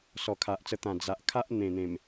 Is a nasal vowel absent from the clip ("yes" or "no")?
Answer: no